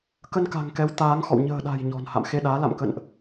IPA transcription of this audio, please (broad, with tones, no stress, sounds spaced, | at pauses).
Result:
k ə˧ n k a̤˨˩ ŋ k ɛ˨˦ w t̪ aː˨˦ ŋ x ɔ̰˧˨ w ɲ ə̤ː˨˩ ɗ a̤˨˩ j ɲ ɔ̤˨˩ n h a̰˧˨ m x e˧ ɗ aː˨˦ l a̰˧˨ m k ə̰˧˨ n ʔ